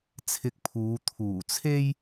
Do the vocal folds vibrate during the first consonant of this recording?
no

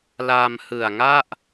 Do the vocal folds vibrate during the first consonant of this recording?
yes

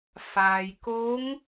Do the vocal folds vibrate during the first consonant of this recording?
no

